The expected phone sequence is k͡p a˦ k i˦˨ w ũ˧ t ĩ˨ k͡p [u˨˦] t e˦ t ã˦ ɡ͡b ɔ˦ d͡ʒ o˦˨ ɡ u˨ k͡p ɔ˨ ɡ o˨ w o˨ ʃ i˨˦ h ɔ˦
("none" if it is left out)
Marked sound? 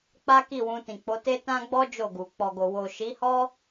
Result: o˨˦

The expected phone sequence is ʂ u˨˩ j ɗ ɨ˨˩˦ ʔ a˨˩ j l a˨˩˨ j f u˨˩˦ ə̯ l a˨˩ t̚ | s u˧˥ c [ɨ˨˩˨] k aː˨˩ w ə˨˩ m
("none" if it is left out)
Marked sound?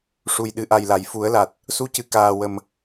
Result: ɨ˨˩˨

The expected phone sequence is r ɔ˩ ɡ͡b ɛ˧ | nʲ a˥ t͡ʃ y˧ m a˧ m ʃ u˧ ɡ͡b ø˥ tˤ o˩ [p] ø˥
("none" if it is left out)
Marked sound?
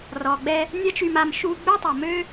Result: m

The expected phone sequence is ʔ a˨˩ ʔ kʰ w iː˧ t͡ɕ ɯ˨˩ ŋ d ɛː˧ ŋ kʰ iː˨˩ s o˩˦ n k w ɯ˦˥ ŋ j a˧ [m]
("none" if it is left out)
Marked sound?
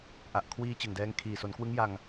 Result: ŋ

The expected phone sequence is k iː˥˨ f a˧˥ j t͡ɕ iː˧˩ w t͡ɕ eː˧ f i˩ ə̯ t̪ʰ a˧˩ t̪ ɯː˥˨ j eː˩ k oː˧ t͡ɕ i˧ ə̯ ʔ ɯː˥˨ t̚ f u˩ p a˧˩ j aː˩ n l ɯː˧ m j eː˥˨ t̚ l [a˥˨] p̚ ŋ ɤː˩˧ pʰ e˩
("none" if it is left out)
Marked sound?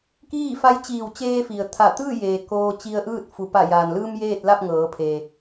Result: a˥˨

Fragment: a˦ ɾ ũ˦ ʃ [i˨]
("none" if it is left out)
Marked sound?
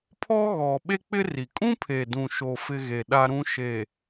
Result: e˨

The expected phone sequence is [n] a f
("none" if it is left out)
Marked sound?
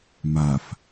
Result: m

